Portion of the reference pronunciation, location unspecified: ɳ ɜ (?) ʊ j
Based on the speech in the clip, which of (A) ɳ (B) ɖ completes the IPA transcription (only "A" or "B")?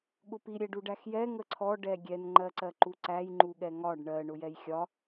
A